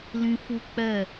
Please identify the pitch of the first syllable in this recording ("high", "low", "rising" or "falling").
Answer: high